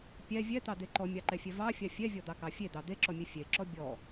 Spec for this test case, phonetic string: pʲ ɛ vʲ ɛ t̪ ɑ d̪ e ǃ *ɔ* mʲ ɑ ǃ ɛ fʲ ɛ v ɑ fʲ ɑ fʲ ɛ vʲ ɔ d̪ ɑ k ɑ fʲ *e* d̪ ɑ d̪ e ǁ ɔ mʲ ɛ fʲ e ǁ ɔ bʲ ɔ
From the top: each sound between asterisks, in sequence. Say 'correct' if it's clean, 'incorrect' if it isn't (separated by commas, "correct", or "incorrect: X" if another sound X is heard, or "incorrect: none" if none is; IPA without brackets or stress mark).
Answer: correct, correct